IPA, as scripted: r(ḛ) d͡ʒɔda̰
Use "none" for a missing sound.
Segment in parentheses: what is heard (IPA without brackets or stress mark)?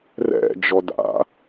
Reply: ɛ̰